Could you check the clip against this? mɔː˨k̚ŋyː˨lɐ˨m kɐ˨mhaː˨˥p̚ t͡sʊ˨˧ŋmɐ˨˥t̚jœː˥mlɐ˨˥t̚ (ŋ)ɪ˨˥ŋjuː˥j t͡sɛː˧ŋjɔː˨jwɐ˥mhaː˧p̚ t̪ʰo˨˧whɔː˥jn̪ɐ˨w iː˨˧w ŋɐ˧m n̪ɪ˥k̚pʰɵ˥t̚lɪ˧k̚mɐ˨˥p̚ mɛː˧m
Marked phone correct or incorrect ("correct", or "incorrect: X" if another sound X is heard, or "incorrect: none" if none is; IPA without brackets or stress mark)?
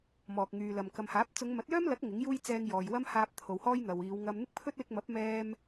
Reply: correct